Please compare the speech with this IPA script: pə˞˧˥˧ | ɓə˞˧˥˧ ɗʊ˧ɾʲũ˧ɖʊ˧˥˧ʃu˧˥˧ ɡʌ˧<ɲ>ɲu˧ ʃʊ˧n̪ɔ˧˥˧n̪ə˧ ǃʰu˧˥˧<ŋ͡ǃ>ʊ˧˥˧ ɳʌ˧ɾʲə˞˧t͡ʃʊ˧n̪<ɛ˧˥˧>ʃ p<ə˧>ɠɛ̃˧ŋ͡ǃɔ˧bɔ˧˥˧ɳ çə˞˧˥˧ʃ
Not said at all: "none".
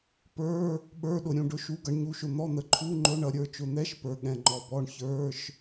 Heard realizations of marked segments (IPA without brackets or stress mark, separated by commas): ɳ, ŋ͡ǃ, ɛ˧˥˧, ə˞˧